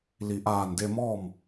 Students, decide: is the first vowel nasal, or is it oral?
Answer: oral